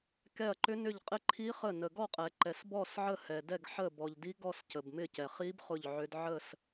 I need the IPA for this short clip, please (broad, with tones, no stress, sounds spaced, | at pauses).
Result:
k ɛ˦˨ ɐ̯ ǃ ʏ˦˥ n ʏ˦˨ ʎ qʼ ɪ˦˥ ǃʰ i˦˥ χ ə˦˨ n ə˨ ɡ ɔ˦˨ qʼ ɛ˨ ǃ ɛ˨ s b ɔ˦˨ s ʕ ə˦˨ h ɛ˨ d ɛ˦˨ ɡ ħ ə˦˨ b ɔ˨ ʎ d i˦˥ ɡ ɔ˦˨ s c ə˨ b m ɪ˦˨ c ɛ˨ χ i˦˥ b χ ʊ˦˨ ʎ ʕ ʏ˦˥ d ʕ ə˦˨ s